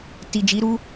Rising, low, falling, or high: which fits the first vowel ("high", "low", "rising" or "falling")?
low